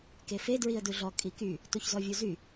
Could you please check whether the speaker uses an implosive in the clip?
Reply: no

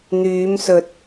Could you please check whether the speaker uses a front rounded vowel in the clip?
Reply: yes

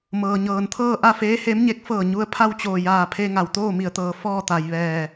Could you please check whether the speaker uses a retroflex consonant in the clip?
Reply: no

